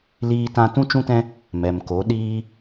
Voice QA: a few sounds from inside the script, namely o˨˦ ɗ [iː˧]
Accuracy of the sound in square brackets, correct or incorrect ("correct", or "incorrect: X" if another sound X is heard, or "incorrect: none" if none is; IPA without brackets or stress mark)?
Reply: incorrect: iː˦